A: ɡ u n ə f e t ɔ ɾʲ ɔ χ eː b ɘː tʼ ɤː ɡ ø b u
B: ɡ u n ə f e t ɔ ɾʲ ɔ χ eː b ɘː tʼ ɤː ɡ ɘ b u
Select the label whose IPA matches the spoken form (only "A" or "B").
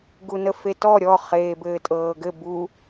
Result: B